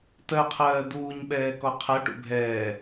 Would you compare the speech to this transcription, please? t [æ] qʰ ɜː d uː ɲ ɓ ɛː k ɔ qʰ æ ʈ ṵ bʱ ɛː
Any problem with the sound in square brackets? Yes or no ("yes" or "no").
yes